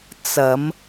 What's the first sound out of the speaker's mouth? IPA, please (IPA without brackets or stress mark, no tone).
t͡s